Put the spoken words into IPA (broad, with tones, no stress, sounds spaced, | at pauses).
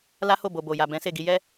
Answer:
l a˦ h o˦˨ b o˨ b o˨ j a˨ b ɛ̃˨˦ s e˦˨ ɡ i˧ j ɛ˦